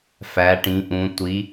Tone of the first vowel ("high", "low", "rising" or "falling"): rising